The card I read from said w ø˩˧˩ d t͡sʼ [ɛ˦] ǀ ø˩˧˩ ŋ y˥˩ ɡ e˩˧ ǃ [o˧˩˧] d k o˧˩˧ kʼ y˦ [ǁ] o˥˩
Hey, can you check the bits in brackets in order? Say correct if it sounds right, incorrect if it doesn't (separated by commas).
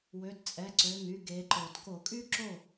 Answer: incorrect, incorrect, correct